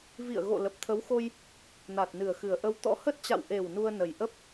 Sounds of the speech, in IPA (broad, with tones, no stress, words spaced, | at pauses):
vḭ˧˨ə̯ɣo̰˧˨ lə˨˩p̚t̪ʰə˨˦wxo˧j | na˨˩t̚nɨ˨˩ə̯xɨ˨˩ə̯ʔə˧w t̪ɔ̰˧˥hə˦˥t̚t͡ɕa̰˧˨w ʔe˨˩w nu˧ə̯nə˨˩jʔə˦˥p̚